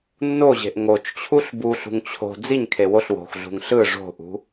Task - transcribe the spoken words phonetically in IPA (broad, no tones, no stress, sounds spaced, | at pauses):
nː o ʑ e̤ ʔ ŋ o t͡ʃ t͡ɕʰ u ɬ b u ɬ ṳ ŋ t͡ɕʰ o̤ d͡z i ɲ kʰ e w o ɬ w o̤ x ɮ ṳ ŋ ɬ ɯ ʐ o̤ ʔ ṳ